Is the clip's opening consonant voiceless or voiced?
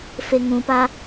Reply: voiceless